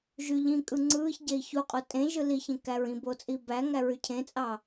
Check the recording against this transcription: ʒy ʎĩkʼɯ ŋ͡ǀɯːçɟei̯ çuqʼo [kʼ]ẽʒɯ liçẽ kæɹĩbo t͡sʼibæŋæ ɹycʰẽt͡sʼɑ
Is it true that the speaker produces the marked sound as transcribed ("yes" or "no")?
no